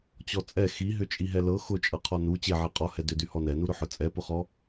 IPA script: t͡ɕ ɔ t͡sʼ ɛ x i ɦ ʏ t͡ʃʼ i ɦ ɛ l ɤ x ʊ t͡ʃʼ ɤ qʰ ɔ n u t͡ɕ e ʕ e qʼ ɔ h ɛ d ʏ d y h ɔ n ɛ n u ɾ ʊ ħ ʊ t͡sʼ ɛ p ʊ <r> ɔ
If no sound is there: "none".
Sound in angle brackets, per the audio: χ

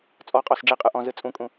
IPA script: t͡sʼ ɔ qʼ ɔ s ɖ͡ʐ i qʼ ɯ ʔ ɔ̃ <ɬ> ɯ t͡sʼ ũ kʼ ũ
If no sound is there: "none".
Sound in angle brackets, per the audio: z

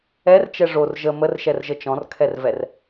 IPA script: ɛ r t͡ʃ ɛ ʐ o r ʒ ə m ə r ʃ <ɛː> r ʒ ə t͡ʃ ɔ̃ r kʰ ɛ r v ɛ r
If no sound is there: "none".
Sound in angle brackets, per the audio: ɛ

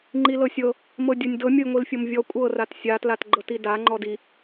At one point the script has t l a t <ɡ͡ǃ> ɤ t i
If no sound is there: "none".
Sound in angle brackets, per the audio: ɡ͡ǃ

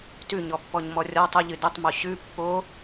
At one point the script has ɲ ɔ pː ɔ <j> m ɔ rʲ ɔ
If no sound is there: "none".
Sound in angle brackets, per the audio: ɲ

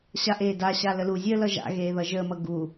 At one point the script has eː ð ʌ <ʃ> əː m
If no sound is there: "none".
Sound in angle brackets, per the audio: ʒ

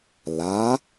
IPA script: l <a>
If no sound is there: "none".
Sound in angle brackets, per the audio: a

